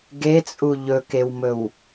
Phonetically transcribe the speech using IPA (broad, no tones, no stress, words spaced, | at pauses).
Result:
ɡet͡sʼu ʎɵkewmɵw